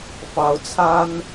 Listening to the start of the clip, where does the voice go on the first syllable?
rising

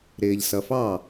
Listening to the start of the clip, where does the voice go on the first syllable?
low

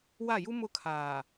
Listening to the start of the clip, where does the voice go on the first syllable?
falling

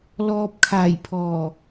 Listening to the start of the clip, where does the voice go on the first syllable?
low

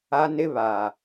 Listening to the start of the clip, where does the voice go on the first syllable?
high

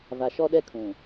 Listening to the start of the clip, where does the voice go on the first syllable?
low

